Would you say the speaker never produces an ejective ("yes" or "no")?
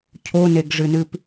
yes